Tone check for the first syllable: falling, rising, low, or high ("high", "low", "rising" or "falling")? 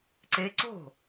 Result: rising